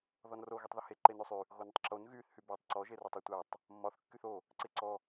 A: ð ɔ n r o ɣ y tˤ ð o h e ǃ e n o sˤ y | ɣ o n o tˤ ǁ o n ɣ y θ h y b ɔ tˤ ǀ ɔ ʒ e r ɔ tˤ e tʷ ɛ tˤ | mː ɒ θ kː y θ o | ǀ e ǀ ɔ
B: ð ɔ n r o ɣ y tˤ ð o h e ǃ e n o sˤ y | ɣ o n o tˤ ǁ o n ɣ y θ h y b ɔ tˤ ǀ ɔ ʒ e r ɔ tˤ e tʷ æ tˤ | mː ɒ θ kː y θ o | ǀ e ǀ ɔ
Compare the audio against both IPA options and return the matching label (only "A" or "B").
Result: B